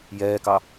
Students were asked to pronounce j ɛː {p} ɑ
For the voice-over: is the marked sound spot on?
no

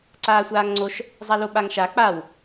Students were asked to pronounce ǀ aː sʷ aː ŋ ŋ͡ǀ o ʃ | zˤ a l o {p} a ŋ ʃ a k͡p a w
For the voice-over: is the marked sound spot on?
no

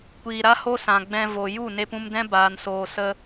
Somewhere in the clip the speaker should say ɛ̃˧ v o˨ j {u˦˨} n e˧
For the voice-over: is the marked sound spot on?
yes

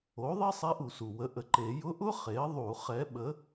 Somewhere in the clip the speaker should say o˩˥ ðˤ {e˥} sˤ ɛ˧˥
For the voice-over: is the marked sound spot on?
yes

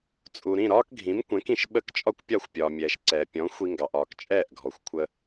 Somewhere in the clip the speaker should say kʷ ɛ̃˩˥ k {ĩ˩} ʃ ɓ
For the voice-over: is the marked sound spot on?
yes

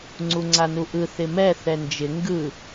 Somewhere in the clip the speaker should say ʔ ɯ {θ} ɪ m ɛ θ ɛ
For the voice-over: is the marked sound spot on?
yes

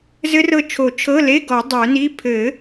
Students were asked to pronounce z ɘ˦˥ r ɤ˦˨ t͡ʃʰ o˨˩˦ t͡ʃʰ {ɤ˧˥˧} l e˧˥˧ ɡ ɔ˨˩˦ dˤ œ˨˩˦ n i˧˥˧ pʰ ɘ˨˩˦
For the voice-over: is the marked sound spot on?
yes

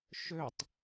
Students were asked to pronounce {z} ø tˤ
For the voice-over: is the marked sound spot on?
no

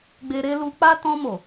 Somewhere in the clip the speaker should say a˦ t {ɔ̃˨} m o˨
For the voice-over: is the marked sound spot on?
no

